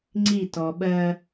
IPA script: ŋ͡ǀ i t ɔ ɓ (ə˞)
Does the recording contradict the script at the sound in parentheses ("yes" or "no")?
yes